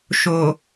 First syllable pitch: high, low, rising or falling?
low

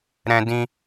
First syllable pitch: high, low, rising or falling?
high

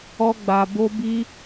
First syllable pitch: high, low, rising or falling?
high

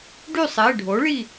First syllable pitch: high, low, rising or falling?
falling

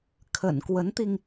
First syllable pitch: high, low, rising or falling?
low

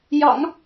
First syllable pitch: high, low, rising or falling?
low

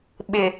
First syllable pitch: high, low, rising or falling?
low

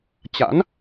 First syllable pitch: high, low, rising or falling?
rising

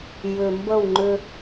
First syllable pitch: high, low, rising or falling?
low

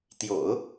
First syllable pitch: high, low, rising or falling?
low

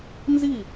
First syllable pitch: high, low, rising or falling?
falling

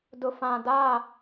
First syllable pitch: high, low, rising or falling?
low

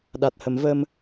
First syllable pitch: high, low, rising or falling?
low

